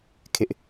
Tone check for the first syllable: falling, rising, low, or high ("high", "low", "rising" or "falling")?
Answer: high